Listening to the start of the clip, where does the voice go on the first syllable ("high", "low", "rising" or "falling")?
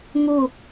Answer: falling